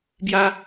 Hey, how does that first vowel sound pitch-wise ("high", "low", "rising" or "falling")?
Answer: high